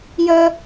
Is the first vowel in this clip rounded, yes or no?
no